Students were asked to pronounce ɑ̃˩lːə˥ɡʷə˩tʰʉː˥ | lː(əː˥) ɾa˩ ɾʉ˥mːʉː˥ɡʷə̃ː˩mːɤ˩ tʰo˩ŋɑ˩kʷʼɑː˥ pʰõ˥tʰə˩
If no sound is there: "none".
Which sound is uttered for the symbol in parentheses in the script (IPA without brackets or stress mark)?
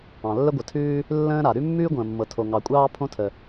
ə̃ː˥